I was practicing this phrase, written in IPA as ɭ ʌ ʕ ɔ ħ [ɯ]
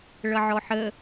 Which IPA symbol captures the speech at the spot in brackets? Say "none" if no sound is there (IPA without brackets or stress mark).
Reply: ə